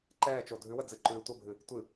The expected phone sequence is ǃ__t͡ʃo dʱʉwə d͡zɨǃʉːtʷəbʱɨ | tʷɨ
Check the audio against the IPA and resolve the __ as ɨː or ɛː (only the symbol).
ɛː